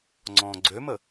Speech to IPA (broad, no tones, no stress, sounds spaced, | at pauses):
ŋ͡ǀ ɔ̃ː ɡ͡ǀ ø m ə